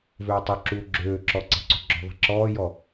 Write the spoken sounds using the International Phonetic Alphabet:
v øː tˤ u ǁ uː ɡ͡ǁ øː ǁ ɔ ǀ ɛ̤ ǀ ṳ ɡ͡ǁ ɔ̤ ðˤ ɛ̤ ǁ ɔː j ɔ

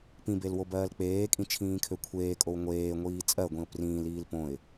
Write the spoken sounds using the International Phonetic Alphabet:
p ĩ b e l w o b ɜː l k͡p eː kʼ ĩ t͡ʃʰ ĩː kʰ ø kʷʰ eː kʼ o w ŋʷ eː ŋʷ iː t͡sʼ ɜ ɡʷ ĩ ʊ̯ p r ĩː l iː l p õ ɪ̯

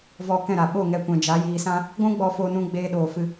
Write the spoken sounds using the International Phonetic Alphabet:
v ɔ˧ k ɛ̃˦˨ ɾ a˨ ɓ o˦˨ ŋ ɛ˧ kʷ ɛ̃˨ d͡ʒ a˨˦ j iː˧ s ã˦ | ɡʷ ũ˦ ɡ͡b ɔ˧ f oː˧ n ũ˧ ɡ͡b eː˧ ɗ oː˨ f ɨ˧

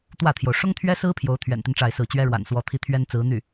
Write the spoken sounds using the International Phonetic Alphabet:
t̪ w ä˥˩ t̪ʰ j o˩ ʊ̯ ʂ ʊ˥ ŋ t̪ʰ ɥ ɛ˥ s ɹ̩˥ pʰ j o˧˥ ʊ̯ t̪ʰ ɥ ɛ̰˨˩ n t̪ i˦ n ʈ͡ʂ a˥˧ ɪ̯ s ɹ̩˥˩ t͡ɕ ɥ ɛ˥ ɻ w a̰˨˩ n s w ɔ˧˥ t̪ʰ i˥ t̪ʰ ɥ ɛ˥ n t͡s ɹ̩˧˥ n̪ y˥˩

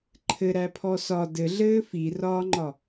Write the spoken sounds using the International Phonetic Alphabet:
ǃʰ ɘ ɾ æ pʰ ɔ s ɒ d ɘ ɮ ɘː f i r ɒː ŋ͡ǃ ɒ

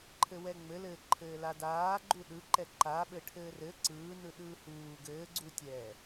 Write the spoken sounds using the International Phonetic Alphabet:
ǃʰ ɘ w ɛ ŋ͡m ɘ l ɘː ǃʰ ɘː l a d aː ɡ͡ǃ u ɗ ɯ ǃ ɛ ǃ a ɓ ɘ ʈʰ ɘː r ɘ ǀ ɯː n ɯ ɗ ɯː h uː ɡ ɘː ɡ͡ǀ u tʲ ɛː

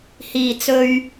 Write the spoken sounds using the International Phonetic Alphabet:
h iː˨˩ t͡s ɵ˨ ɥ

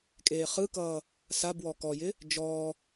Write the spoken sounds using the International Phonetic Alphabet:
kʼ eː χ ɯ k ʌː | s a b w ɔ k ɔ j ɪ | d͡ʒ ɔː

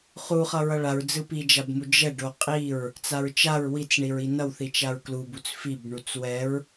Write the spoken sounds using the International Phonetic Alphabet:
χ u χ ʌ ɹ ʌ ɭ a ɹ d͡z ɯ p i d͡ʒ a b m u d͡ʒ ɛ ɖ o qʼ i ɹ | t͡s a ɹ t͡ʃ a ɹ w i t͡s ɳ i ɹ i n ʌ w θ i t͡ʃ a ɹ k l u b u t͡s f i b ɳ u t͡s w ɛ ɹ

